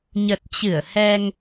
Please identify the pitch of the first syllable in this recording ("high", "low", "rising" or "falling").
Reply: low